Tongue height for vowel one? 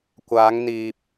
low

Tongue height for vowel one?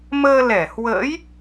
mid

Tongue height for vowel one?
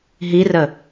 high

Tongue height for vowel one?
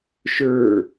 mid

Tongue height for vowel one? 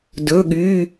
mid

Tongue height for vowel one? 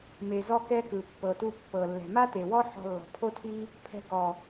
mid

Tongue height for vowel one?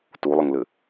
high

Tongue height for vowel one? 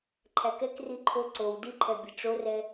low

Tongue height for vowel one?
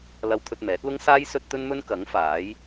low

